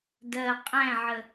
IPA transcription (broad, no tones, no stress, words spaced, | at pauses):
dɜ qʼæ̃ʕə